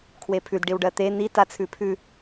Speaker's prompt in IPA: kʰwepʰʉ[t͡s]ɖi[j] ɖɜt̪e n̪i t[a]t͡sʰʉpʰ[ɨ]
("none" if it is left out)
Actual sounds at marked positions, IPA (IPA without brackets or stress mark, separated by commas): d, w, a, ʉ